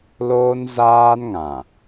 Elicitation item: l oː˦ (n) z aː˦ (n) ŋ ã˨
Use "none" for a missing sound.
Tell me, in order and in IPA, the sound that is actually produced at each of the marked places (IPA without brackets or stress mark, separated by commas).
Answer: n, n